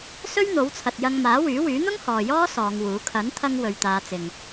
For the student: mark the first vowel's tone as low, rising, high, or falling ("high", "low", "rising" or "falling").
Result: high